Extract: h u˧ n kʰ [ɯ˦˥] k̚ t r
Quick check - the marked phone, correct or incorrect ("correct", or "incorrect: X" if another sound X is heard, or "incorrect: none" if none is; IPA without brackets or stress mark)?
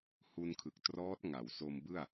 incorrect: ɯ˨˩